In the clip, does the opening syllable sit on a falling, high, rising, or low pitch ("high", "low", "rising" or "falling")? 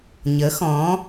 rising